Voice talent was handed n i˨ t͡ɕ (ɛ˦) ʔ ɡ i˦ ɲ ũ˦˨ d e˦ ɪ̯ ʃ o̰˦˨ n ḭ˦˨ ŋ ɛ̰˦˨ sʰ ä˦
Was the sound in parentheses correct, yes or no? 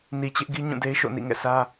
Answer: no